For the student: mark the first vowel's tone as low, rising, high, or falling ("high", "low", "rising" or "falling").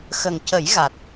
low